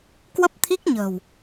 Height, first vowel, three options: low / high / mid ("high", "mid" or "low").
mid